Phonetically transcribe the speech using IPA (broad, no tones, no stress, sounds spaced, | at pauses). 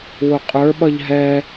w ʊ qʼ ə˞ ɓ ʌ ʎ ɦ ɛ